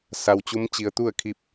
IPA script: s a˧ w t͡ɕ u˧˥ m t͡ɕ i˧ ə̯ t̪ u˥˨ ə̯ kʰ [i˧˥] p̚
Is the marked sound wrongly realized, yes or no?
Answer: yes